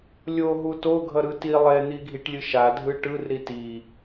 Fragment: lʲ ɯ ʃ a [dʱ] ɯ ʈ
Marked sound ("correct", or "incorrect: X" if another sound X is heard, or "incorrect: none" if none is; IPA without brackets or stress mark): correct